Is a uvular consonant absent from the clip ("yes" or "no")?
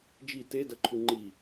yes